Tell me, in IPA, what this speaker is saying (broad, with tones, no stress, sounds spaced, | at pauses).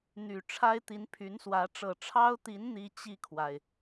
n̪ y˨˩ ʈ͡ʂʰ a˥ ɪ̯ t̪ i˧˥ n pʰ y˧˥ n s w ä˧˥ ʈ͡ʂ ɤ˨˩ ʈ͡ʂʰ ɑ˥ ʊ̯ t̪ i˧˥ n n̪ i˥ t͡ɕ i˥˩ kʰ w a˩ ɪ̯